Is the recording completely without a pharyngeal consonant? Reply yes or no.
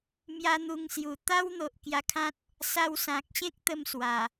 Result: yes